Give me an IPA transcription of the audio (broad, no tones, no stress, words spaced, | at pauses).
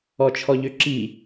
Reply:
ɔt͡ʃʰɔʎøǁi